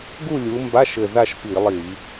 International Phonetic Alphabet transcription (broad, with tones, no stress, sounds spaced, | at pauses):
ɡ u˥˨ lʲ u˨˦ m b a˧˥˧ ʃ ɘ˧˩ z a˥˨ ʃ p i˧˩˧ lˠ i˧˩˧